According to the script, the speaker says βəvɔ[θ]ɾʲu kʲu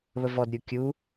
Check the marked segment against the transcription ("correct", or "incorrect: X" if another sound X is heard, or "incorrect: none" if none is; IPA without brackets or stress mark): incorrect: d